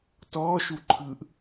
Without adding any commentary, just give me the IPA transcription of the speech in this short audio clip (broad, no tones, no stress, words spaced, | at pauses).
tɔːʃuǃʰɯːʔ